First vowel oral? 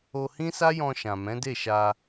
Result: yes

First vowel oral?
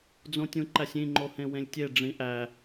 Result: no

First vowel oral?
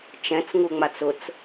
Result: no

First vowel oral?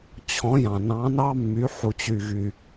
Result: no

